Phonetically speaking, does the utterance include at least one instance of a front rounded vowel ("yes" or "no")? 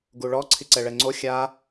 no